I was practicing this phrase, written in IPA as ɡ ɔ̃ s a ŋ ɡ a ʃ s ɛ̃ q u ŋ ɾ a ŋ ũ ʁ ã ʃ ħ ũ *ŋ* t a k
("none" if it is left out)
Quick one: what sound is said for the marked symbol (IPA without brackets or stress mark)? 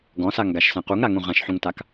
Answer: ŋ